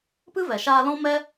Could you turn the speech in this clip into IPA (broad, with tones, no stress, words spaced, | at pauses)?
pɨ˦vɛ˨ʃaː˧lɔ̃˦ mɛ˦